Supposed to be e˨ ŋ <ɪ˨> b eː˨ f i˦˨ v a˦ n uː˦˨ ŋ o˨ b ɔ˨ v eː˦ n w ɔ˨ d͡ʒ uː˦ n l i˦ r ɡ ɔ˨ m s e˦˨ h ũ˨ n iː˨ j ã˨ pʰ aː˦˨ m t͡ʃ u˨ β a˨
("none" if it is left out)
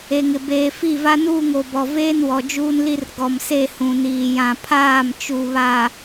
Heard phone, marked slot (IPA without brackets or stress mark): ɪ˨